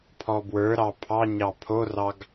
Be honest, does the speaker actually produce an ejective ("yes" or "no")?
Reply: no